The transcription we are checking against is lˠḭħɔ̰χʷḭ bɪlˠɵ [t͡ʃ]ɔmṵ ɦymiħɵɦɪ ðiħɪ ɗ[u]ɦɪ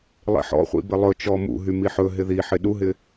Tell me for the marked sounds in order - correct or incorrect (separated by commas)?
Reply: correct, correct